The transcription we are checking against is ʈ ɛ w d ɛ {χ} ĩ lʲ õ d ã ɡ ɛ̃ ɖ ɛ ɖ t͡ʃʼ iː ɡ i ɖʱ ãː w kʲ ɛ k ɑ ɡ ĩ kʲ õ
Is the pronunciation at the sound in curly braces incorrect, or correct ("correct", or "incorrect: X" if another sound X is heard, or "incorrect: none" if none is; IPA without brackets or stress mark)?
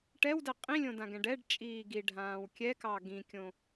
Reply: incorrect: qʼ